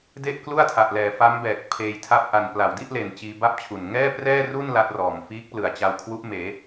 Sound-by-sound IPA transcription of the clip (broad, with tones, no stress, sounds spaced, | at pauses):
d e˥˩ ʔ k l u˥˩ a̯ tʰ a˨˩ ʔ l ɛː˩˦ f a˦˥ m b ɛː˨˩ k̚ pʰ eː˧ j tʰ a˥˩ p̚ ʔ a˨˩ n p l a˨˩ w d i˥˩ ʔ l e˨˩ n t͡ɕ iː˧ b a˥˩ p̚ t͡ɕʰ u˨˩ n ŋ ɛː˥˩ p r ɛː˥˩ r u˥˩ n l a˦˥ t̚ r ɔː˨˩ m f iː˦˥ k̚ p l ɯ˨˩ a̯ t͡ɕ a˧ w kʰ w u˦˥ ʔ m eː˩˦